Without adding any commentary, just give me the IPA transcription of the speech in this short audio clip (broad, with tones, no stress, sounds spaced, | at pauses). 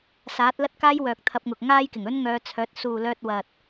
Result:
s aː˨˥ t̚ l ɐ˥ t̚ k aː˥ j w œː˨ k̚ t̪ʰ ɐ˧ p̚ ŋ ʊ˨ k̚ ŋ aː˥ j k ɪ˨˩ ŋ ɵ˥ n ŋ œː˧ t͡sʰ œː˨˥ t̚ s uː˨ l œː˧ t̚ w ɐ˨ t̚